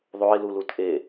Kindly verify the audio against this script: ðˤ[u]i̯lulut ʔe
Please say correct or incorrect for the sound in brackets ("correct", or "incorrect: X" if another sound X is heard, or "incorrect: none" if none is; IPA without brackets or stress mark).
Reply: incorrect: o